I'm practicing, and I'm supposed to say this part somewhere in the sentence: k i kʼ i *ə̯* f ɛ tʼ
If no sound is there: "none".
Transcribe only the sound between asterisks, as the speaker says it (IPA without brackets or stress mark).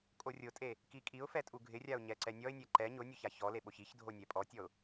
ʊ̯